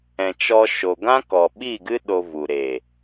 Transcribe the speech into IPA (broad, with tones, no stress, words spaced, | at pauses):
ɛ̃˨t͡ʃɔ˧ ʃo˨ɡã˦ kɔ˨ɓi˦˨ɡɨ˦ ɗo˧vu˨ ɾe˨